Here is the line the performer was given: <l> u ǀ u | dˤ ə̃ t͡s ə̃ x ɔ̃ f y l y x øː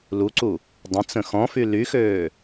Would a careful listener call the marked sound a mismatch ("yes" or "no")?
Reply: no